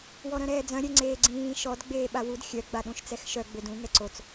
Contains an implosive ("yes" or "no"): yes